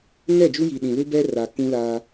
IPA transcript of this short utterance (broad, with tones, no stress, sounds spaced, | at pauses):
ŋ ɛ˦˨ d͡ʒ u˦ j i˨ ɗ ĩ˨ l u˦ b ɛ˦ r a˨ k ũ˦ l a˦